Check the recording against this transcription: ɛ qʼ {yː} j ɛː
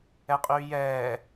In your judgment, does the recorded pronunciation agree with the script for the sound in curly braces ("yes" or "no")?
yes